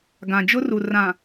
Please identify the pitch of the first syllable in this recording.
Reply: low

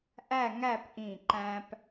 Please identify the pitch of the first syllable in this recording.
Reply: falling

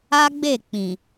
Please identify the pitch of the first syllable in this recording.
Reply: high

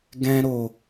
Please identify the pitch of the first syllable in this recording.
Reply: high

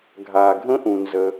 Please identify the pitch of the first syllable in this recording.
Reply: low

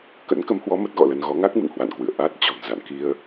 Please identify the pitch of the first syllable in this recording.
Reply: rising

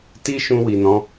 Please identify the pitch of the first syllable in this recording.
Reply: high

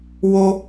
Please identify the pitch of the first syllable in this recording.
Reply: low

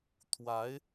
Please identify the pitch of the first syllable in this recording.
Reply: rising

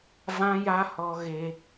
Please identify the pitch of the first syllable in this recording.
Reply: high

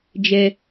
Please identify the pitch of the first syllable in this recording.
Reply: low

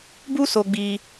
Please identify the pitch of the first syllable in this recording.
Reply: high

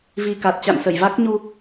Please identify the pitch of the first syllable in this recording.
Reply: low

